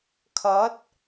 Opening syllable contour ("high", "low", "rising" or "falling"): rising